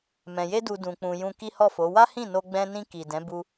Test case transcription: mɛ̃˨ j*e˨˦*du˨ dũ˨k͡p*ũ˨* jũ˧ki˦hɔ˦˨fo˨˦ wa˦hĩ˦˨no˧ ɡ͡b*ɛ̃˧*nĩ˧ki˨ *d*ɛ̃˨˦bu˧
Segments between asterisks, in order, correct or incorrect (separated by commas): incorrect, correct, correct, correct